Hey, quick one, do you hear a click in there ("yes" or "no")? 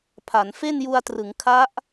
no